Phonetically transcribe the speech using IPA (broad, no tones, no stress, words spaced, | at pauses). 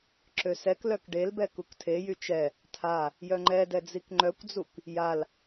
ǁøsɛklœk ɖelbɛ kuktʰejy t͡ʃɛ | tʰa | jœŋ͡ǃɛdɛ d͡zikŋ͡ǃœkʷd͡zuk | jal